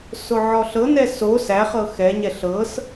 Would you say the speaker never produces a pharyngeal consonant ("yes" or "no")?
no